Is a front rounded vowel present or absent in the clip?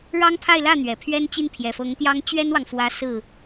absent